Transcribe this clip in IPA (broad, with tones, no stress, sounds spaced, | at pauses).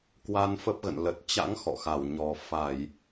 k w a˧ n f ə˦˥ p̚ ɣ ə̰˧˨ n l ə˨˩ t̚ t͡ɕ a̰˧˥ ŋ x ɔ̰˧˨ x a˧˩ w ɲ ɔ˨˩ f a˧˩˨ j